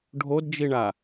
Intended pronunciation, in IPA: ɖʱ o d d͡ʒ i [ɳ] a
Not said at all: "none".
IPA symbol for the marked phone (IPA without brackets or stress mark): ɳ